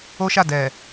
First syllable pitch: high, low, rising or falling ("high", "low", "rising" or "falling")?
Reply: high